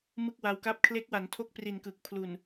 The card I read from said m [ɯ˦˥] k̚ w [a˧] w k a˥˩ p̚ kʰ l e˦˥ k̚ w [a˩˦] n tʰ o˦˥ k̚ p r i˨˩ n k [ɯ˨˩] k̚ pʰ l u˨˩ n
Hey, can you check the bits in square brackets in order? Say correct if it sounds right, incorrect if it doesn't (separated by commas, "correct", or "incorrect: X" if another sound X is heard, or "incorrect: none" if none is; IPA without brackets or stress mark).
incorrect: ɯ˥˩, correct, correct, correct